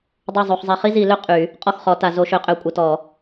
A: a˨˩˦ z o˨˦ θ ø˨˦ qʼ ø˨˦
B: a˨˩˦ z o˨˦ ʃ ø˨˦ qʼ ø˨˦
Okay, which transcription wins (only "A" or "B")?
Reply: B